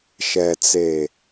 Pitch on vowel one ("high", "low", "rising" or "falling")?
low